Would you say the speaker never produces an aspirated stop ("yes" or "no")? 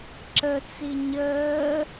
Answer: yes